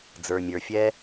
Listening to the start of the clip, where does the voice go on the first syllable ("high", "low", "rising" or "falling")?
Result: low